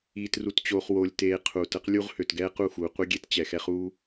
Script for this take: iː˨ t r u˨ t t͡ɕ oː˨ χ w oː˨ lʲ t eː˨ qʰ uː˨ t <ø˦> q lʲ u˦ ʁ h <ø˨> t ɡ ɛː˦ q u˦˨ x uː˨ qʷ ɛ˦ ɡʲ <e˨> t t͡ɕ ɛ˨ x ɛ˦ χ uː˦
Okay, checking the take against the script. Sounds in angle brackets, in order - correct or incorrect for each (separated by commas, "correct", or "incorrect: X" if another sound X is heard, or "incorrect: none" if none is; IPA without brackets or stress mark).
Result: incorrect: ə˦, correct, incorrect: e˦